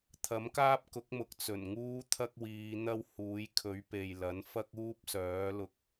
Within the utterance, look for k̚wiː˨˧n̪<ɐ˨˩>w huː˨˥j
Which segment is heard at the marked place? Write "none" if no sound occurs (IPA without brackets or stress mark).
ɐ˥